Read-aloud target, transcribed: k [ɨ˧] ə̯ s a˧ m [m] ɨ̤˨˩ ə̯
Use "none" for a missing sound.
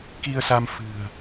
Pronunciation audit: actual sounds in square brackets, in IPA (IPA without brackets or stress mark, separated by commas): i˧, f